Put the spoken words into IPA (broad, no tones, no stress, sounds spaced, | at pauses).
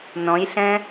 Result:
n ɔ̃ j ɬ ɛ̃